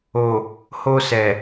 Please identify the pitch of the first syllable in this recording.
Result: low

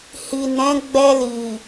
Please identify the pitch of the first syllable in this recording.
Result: low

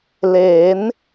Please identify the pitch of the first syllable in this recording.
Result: rising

